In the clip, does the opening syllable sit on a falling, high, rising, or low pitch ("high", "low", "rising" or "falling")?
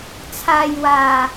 low